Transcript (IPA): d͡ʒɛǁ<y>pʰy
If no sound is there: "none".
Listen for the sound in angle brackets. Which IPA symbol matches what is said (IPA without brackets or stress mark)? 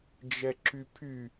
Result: y